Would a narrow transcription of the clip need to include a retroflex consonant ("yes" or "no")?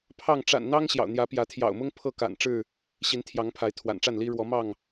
yes